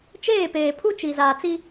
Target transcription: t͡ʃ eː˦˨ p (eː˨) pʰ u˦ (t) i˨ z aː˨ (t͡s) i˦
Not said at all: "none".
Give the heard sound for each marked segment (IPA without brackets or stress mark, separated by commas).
eː˨, t͡ʃ, t͡s